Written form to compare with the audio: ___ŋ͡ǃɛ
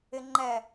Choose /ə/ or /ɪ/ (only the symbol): ɪ